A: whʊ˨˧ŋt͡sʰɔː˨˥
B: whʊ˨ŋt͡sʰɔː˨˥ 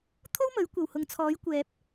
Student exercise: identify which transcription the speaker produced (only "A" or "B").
B